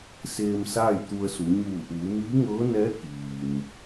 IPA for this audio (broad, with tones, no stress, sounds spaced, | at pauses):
s eː˧ m s aː˥˨ j t̪ u˧ ə̯ s u˩˧ ɲ uː˧˩ ʔ uː˩˧ m iː˧˥ ŋ ɤː˧˥ n ɛː˧˥ k iː˩ m